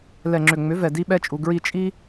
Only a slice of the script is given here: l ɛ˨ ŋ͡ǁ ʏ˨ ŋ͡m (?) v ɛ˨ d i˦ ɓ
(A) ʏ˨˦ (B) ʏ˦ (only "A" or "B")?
A